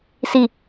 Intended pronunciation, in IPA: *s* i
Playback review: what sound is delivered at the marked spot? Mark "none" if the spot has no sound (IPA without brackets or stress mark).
s